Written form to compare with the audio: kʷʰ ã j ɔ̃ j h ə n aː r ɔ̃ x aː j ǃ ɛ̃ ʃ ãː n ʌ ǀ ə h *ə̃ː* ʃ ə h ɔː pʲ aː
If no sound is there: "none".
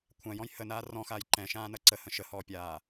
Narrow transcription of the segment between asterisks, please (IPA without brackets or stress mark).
ə̃